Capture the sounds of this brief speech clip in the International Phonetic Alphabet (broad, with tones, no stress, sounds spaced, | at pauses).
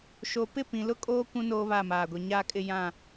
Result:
ʃ o˨ p ɪ˦˨ p ĩ˨ l ʊ˦ kʼ oː˦ kʷ ũ˦ n oː˦ β a˦˨ m aː˨ ɡʷ e˨ ɲ aː˦ kʼ ɪ˦ j ã˦˨